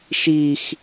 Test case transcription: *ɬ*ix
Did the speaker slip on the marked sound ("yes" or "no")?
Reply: yes